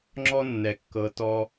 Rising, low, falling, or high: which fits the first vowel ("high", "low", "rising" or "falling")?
high